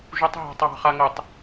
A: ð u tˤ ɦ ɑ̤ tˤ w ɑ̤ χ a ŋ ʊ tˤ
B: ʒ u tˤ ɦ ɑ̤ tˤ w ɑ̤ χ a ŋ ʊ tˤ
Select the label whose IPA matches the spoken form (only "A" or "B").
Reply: B